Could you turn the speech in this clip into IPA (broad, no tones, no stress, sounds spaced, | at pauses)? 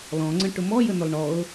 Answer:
l ɔ̃ ŋ͡ǀ ə̃ ʈ ʊ m ɔ j ə n ʊ lˠ ɳ ɔ ʊ̯